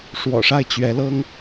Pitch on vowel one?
low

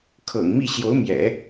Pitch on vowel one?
low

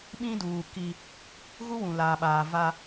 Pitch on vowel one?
high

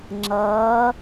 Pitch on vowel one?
rising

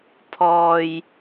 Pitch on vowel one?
low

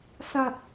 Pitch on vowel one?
low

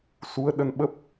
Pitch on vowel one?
rising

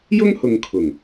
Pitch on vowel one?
high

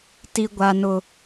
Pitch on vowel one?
high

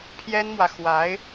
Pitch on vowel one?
high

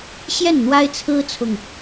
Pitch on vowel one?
falling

